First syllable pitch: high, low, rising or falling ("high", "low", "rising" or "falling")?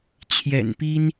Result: low